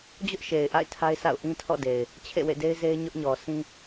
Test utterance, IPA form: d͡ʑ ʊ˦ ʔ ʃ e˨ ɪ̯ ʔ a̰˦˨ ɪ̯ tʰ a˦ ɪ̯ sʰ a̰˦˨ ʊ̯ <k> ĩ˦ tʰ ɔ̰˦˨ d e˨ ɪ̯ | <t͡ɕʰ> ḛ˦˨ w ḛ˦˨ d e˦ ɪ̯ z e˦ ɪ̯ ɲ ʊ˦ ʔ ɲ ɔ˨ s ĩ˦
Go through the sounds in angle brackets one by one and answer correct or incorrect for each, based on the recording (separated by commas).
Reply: incorrect, correct